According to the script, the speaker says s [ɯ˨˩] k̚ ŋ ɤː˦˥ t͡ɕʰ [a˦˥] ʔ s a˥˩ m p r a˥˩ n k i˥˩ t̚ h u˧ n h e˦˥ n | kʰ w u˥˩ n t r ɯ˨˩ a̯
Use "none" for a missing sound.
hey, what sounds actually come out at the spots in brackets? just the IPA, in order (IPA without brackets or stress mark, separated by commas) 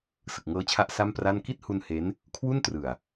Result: ɯ˨˩, a˦˥